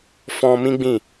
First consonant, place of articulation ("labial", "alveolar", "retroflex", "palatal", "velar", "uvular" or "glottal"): labial